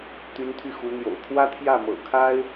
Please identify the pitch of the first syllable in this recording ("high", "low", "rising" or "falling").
rising